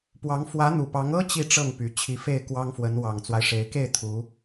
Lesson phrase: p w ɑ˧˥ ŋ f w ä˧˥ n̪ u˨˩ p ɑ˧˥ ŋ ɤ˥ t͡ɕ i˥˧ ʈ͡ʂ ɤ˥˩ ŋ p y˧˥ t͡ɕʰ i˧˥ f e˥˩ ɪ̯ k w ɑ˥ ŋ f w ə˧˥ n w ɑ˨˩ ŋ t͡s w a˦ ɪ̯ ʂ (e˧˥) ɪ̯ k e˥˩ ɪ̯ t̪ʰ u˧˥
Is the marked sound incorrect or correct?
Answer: correct